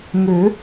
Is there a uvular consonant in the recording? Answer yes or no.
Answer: no